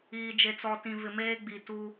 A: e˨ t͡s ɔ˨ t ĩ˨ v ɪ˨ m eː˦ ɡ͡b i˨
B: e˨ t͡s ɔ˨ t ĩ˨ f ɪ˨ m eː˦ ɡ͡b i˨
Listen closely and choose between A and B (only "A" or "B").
A